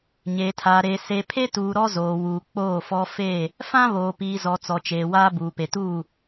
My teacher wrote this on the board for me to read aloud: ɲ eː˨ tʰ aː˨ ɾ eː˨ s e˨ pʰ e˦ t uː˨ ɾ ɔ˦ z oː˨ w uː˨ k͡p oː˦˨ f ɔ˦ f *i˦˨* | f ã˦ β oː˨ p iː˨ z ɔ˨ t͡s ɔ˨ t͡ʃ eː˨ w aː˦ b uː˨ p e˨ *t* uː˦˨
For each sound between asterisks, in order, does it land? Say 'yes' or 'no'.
no, yes

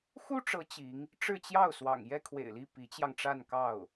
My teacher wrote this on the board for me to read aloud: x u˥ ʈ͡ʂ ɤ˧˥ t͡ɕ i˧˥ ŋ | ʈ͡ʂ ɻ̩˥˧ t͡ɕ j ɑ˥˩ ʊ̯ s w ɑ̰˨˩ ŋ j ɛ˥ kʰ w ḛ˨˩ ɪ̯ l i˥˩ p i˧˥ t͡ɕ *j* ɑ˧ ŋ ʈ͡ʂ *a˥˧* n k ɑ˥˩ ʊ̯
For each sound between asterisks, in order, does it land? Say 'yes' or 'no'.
yes, yes

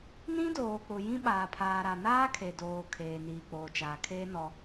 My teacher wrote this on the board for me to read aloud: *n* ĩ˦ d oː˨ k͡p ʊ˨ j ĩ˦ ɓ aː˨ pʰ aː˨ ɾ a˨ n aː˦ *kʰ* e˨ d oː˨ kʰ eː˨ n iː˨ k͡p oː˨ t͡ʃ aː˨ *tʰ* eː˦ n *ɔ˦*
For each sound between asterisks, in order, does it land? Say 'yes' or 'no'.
yes, yes, no, yes

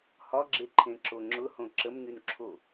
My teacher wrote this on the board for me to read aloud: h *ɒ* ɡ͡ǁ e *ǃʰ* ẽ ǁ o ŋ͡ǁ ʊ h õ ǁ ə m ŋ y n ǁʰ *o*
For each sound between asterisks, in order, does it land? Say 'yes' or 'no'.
yes, yes, yes

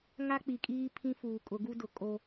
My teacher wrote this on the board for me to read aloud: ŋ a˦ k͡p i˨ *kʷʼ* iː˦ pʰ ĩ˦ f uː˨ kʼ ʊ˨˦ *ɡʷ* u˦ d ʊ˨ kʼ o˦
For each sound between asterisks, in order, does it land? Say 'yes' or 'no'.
no, no

